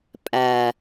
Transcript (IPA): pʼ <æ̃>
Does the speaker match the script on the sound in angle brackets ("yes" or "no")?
no